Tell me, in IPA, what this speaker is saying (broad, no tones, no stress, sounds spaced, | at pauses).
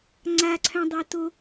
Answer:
ŋ͡ǀ a ǀʰ œ̃ dˤ a t o